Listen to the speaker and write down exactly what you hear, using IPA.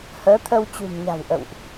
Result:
h əː˨˦ t̪ʰ ə˧ w t͡ɕ ṳ˨˩ n ɲ a̤˨˩ w ʔ ə̰˧˨ w ʔ

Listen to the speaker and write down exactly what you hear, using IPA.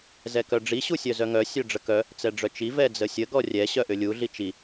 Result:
z ɛ k œ ɖ͡ʐ i ɕ u sʲ œ z œ ŋ œ sʲ œ ɖ͡ʐ ə k œ | t͡s ɛ ɖ͡ʐ œ t͡ʃ i v ɛ d͡z ə sʲ ə ɡ ɔ rʲ ɛ ɕ œ ʔ ʏ lʲ u ɮ i t͡ʃ i

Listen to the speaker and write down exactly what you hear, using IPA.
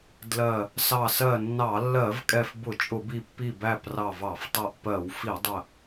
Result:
d l ɜ˧˩ | s ɑ˧˩ s ɜ˧˩ nː ɑ˧˩˧ lː ɜ˧˩˧ v kʼ ɛ˧˩ f b ʊ˧˩˧ t͡ʃʼ ʊ˧˩˧ b i˧˩ pː i˧˩ b æ˧˩ p r ɑ˧˩ v ɑ˧˩˧ f tˤ ɜ˧˩ ʔ p ɜ˧˩˧ w f i˧˩˧ dˤ ə˧˩

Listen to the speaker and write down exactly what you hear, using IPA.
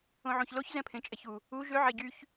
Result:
õ ʕ ũ ç l o ç z ɛ̃ pʰ ẽ t͡ʃʼ ɛ ç u | u ʒ ø ʕ e ɟ y ç

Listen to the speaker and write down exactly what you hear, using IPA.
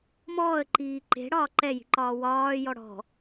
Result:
m ɔː ə̯ ǃ iː ǃ e̤ ɽ ɒː ǃ ɛ j i̤ ǃ ɒː w ɒː j ɔ ɽ ɔ̤

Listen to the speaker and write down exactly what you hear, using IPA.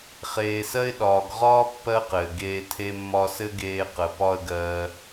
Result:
χ eː˨ s ɜ˧ ɪ̯ ɗ ɒː˨ ɡ ʁ ɒː˦ pː ɜ˦ q ɘː˨ ɡ eː˧ tʰ e˧ mː ɒ˧ s ɘ˦ ɡ eː˧ q ə˨ p ɒ˦ ə̯ ɡ ɜː˧

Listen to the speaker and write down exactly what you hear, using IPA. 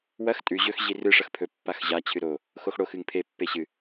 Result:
w ɐ x tʼ ʉ ʑ ɵ x ʑ i r ɨ ʂ ɐ x pʰ ɵ pː a x ʑ a t͡ɕʰ ɨ ɾ o | x o x ɽ o x ɨ ŋ pʰ e pː e ɕ ɨ

